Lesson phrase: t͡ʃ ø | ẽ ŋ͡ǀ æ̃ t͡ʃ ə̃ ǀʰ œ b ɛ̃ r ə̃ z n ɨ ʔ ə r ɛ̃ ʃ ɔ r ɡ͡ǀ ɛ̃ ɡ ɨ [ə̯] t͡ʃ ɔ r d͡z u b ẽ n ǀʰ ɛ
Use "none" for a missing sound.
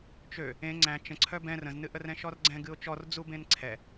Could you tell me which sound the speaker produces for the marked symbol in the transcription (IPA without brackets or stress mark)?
ʊ̯